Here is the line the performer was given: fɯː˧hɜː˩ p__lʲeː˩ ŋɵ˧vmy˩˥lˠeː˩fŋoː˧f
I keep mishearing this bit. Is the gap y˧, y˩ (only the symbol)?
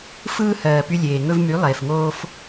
y˧